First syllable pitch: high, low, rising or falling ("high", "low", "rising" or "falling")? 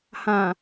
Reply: low